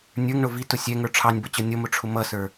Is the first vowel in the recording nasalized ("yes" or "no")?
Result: no